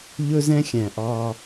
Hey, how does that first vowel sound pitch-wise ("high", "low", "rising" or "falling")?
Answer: high